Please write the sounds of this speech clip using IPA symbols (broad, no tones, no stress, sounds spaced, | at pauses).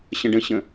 ɕ ə̃ ɖ ə̃ ɕ ə̃